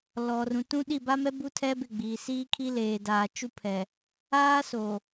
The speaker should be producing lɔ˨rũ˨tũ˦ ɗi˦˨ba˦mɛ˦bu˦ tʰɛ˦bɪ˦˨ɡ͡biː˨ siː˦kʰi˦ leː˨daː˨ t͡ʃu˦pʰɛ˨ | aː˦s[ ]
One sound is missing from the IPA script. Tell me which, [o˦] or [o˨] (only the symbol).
o˨